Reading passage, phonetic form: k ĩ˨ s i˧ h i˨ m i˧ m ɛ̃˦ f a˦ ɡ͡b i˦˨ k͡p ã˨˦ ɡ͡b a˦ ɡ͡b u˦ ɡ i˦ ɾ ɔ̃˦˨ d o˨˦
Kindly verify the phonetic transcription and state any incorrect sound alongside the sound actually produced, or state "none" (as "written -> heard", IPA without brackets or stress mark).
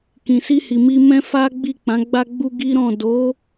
none